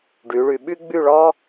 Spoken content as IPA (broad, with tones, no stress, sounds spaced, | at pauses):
ɖ y˩˧ ɭ y˩˧ ɓ y˥ ɡ͡b y˥˧ ɭ ɔ˥